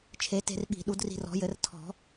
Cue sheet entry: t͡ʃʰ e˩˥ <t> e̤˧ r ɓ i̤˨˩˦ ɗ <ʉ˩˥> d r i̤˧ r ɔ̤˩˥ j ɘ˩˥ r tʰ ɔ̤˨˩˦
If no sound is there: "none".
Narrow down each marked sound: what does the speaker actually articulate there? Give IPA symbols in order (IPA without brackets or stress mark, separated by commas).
t, u˩˥